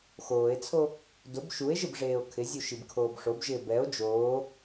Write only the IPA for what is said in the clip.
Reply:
xoːe̯t͡sʰo | dʊb ʃue̯ʒɪb ʐeːo̯kʰɪzʲu ʃibkʰoːbʂobʒɪː bɛo̯ d͡ʒoː

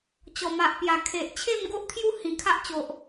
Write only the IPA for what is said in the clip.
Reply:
t͡ɕɔ˨˩ma˨ʔpja˨˩ kʰe˨ʔ t͡ɕʰe˥˧mɡo˦ʔt̪ʰju˥˧ hĩ˨˩kʰa˦ʔt͡ɕo˨ʔ

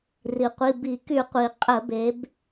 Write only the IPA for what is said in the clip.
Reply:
ri˩qʷi˩˧˩ bi˧˩˧ky˧˩˧qʷi˩ qʼə˧˩˧be˩˧b

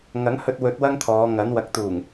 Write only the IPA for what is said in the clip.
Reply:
ŋɐ˨˥ŋhɵ˧t̚wɵ˨˥t̚ wɐ˥ŋt̪ʰɔː˨˧ŋɐ˨˥n wɐ˨k̚t̪uː˨˩ŋ

